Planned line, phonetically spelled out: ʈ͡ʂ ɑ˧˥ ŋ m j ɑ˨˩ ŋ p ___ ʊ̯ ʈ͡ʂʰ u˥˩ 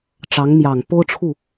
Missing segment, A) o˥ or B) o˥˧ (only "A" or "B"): A